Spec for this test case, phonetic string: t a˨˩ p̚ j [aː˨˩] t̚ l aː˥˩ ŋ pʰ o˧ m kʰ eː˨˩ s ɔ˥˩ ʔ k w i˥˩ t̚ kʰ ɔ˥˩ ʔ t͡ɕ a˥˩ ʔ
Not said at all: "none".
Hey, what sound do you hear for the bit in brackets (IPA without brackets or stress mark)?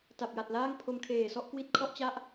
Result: a˨˩